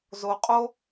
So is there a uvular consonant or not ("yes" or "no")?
yes